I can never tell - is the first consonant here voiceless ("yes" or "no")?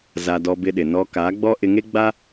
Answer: no